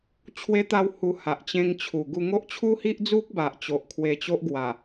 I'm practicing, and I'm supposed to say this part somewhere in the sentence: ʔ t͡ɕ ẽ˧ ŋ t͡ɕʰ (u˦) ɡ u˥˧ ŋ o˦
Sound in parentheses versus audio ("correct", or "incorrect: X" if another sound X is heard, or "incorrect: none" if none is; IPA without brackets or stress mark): incorrect: u˨˩